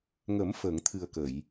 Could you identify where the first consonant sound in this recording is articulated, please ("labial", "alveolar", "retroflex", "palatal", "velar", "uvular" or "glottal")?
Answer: velar